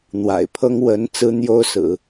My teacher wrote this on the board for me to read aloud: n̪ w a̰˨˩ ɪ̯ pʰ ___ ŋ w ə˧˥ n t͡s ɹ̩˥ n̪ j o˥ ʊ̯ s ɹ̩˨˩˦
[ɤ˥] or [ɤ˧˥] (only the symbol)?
ɤ˥